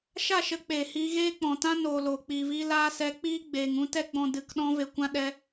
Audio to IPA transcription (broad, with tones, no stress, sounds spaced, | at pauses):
ʃ a˦˨ ʃ ə˨˦ k͡p eː˨ h iː˧ ɣ eː˦ k͡p ɔ̃˨ t ã˦ n oː˨ l oː˨ k͡p iː˨ v iː˧ l aː˧ s ɛ˨˦ k͡p iː˦ ɡ͡b eː˨ ŋ ũ˧ t ɛ˧ ɡ͡b ɔ̃˨ d ɨ˨ k ɗ ɔ̃˧ v e˨ kʷ ã˧ ɗ ɛ˧